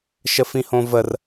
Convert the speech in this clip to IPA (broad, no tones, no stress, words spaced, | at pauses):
ʃəfĩhõvər